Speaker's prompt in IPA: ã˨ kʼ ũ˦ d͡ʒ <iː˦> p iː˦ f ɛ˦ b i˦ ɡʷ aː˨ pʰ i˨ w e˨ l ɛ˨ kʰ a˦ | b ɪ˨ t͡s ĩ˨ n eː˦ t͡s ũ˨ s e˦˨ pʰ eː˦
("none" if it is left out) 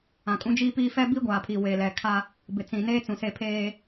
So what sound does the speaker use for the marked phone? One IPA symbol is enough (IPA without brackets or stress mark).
iː˦